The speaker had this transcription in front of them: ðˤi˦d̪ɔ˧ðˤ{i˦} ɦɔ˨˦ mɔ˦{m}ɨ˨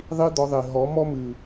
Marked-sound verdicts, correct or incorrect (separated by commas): incorrect, correct